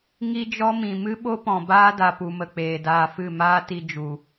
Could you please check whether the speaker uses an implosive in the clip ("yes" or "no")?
yes